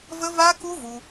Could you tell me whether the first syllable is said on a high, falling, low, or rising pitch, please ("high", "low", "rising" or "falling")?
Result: high